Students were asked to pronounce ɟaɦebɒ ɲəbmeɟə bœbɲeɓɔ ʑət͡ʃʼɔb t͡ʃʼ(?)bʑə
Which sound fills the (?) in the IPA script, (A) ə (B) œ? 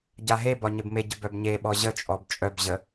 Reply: B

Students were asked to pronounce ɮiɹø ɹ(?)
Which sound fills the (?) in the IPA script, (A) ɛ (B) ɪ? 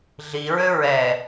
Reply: A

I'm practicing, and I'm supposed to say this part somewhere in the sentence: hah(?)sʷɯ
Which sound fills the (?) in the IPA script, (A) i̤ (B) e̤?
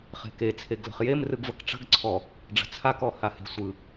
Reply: B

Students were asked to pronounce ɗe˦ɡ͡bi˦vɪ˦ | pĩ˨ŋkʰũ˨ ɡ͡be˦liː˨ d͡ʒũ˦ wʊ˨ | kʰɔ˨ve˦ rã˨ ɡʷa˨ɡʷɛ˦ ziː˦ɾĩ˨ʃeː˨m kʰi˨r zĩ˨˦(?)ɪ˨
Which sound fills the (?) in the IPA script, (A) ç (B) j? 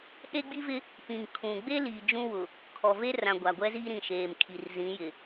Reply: B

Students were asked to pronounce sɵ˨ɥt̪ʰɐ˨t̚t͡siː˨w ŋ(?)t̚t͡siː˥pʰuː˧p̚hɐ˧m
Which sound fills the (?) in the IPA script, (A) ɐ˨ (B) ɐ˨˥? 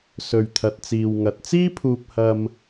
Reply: A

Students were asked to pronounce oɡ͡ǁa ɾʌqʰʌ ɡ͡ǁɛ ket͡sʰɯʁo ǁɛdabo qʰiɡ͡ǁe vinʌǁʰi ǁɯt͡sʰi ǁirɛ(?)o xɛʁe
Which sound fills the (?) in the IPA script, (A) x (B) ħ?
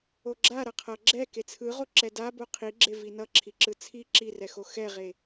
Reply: A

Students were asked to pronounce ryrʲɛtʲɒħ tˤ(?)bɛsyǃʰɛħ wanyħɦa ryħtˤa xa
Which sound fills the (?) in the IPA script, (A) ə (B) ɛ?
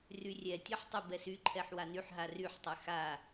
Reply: B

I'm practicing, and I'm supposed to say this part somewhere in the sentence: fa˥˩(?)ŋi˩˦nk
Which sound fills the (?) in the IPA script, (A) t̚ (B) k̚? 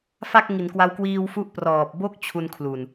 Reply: B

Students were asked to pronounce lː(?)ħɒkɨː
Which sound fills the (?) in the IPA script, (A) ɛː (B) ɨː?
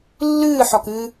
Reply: B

